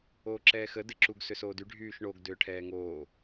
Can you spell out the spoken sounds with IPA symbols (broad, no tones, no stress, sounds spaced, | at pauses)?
oː ǁ ɛː x ə d ɪ ǁ u ɡ s ʏ s oː d y ɖʱ yː ʃ ɳ o ɡ d ʏː ʈʰ ɛː ŋ oː